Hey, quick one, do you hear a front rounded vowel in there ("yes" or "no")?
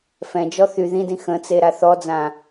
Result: yes